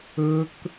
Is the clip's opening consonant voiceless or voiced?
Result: voiceless